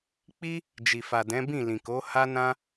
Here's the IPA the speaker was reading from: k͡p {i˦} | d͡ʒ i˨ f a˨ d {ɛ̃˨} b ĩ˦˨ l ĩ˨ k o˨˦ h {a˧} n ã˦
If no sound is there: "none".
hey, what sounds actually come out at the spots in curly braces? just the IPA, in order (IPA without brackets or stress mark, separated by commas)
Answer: i˦, ɛ̃˨˦, a˦